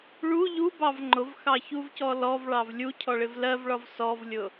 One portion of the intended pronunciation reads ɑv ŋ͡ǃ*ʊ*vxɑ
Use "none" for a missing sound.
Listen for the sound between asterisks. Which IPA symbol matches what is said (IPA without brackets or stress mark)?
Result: ʊ